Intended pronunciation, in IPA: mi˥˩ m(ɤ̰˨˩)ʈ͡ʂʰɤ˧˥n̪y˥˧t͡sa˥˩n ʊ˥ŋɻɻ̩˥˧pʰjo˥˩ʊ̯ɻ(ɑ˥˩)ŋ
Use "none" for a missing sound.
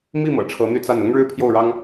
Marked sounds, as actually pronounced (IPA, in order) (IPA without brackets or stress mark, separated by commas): ɤ̰˨˩, ɑ˥